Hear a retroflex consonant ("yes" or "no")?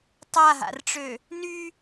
yes